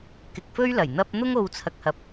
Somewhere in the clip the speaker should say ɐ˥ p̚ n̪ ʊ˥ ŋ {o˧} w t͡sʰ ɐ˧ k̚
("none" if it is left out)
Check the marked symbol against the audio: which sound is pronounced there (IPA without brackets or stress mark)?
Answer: o˧